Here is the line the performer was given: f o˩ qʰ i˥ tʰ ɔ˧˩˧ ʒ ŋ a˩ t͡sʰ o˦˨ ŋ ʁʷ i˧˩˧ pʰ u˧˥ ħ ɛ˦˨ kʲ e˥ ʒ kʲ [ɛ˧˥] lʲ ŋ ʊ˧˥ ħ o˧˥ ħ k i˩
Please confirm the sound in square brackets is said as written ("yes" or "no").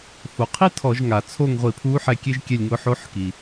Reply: no